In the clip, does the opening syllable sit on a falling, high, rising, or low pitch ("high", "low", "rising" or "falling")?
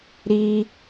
high